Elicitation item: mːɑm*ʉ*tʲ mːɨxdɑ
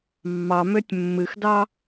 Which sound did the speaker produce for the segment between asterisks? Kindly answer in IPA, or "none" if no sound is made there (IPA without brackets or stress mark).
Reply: ø